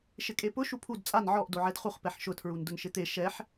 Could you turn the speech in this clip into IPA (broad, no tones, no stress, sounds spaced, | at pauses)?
ʃ ɪ kʼ e p ʊ ʃ u pʰ u d t͡sʼ a n ʕ ɔ ʔ d o ʕ ɛ d χ u χ p ɛ ħ ʃ ʊ tʰ ɹ u n d ʊ n ʃ ɪ t̪ e ʃ ɛ ħ